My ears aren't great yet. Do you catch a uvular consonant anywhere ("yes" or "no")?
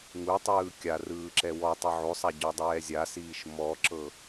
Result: no